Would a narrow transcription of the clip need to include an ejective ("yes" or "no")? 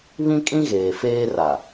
yes